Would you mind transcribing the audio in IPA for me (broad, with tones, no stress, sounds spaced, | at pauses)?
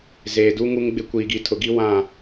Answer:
z eː˨ d u˦ ŋ u˦ ŋ ɡ͡b ɪ˦ kʷ iː˨ ɡ i˨ tʰ ʊ˨ ɡ i˦ w ã˦˨